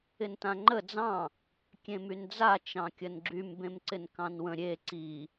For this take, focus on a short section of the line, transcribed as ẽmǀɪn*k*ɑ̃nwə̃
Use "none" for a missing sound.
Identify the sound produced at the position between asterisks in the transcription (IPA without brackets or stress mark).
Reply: k